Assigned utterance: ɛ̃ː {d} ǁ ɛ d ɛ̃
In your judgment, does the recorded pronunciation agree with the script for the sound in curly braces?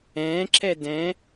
no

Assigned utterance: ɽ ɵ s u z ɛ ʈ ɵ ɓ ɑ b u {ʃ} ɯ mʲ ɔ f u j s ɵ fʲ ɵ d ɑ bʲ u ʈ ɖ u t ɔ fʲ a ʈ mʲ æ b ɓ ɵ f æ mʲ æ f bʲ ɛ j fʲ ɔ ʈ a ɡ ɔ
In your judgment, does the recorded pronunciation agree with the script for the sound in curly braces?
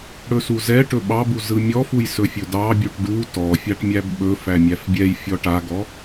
no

